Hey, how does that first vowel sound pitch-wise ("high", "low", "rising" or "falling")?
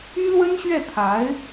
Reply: high